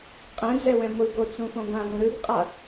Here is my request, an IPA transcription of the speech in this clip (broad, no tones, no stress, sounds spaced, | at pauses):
qʼ ɛ̃ d͡z ɛ w ɛ̃ ŋʷ ɯ ɡ o t͡s ũ f õ ɡʷ ã ŋʷ ĩ ɾ ɯ ɡ qʼ a